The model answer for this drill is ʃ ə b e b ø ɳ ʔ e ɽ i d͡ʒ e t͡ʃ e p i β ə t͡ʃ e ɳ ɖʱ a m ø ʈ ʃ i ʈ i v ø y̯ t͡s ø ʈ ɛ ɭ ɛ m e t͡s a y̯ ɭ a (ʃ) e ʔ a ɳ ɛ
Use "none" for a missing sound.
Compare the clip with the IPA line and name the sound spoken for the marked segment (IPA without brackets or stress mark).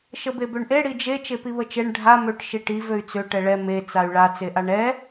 t͡s